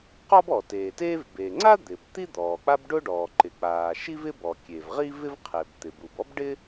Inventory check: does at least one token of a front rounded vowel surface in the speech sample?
no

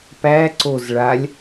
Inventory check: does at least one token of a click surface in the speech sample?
yes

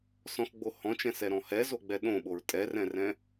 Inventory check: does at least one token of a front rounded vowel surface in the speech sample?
no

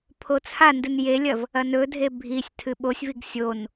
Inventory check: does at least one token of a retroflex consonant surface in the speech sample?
no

